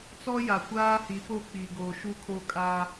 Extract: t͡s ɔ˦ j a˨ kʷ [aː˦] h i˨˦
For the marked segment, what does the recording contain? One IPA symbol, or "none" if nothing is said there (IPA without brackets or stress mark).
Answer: aː˦